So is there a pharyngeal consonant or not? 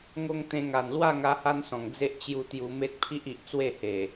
no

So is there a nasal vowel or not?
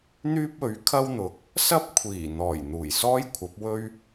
no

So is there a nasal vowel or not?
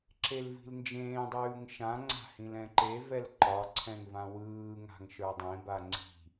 yes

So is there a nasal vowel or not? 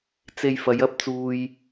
no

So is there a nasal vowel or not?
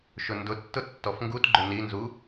no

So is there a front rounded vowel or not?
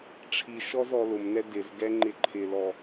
no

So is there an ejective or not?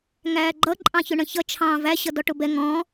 yes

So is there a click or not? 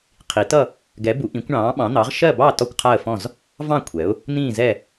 no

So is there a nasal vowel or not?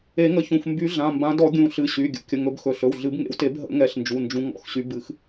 yes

